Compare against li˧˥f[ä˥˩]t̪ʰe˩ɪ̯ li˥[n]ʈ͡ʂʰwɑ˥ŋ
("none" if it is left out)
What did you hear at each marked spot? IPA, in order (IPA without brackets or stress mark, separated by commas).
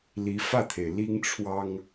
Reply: ä˥˩, ŋ